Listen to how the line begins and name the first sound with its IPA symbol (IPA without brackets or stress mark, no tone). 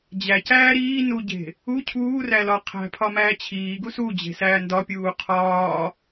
d͡ʑ